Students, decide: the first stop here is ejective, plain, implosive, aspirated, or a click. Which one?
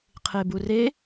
aspirated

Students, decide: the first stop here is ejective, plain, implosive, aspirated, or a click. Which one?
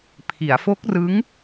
aspirated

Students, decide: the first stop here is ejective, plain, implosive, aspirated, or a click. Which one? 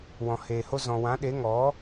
implosive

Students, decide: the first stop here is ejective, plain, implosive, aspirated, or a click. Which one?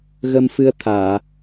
aspirated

